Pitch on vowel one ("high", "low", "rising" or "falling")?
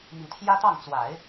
low